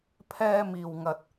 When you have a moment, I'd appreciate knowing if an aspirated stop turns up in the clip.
yes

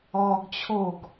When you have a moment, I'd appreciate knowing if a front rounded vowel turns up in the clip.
no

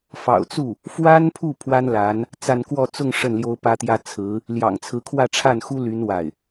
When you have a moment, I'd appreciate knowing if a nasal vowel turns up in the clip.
no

